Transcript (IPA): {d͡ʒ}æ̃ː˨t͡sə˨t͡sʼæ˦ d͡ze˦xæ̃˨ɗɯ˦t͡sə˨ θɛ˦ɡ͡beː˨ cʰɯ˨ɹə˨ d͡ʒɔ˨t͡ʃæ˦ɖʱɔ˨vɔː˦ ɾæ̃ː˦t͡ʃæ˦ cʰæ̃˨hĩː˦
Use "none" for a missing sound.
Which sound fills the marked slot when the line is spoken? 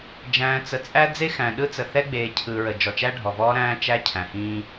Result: d͡ʒ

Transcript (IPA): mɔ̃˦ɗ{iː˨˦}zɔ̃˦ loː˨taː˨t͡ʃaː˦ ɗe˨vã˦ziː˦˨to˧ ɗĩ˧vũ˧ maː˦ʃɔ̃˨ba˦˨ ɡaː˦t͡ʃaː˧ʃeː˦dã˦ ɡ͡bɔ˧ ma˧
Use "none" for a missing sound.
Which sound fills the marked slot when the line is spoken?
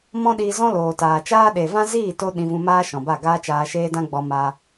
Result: iː˧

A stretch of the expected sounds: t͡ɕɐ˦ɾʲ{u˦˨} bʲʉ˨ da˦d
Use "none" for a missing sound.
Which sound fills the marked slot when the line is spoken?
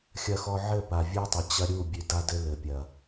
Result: u˦˨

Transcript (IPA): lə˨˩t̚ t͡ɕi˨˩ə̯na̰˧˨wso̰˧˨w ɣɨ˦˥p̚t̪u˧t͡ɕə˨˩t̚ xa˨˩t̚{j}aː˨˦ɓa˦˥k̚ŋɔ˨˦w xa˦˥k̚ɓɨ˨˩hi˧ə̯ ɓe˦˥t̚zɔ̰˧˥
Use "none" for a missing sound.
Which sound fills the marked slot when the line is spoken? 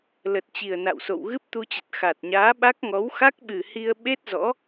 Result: ɲ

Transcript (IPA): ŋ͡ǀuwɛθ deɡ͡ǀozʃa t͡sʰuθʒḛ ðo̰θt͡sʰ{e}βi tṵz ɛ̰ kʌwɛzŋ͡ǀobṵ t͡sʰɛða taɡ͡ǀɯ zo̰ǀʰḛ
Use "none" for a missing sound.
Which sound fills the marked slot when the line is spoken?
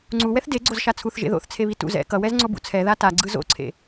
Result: e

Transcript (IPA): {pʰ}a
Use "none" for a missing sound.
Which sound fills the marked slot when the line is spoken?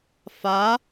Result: f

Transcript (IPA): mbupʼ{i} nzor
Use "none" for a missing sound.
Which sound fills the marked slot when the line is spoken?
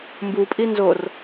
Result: i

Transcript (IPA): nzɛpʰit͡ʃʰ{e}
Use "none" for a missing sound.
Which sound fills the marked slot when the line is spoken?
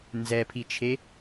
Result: e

